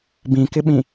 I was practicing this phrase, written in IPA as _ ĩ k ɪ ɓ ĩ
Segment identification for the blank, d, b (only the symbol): b